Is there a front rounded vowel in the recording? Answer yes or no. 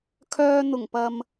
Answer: yes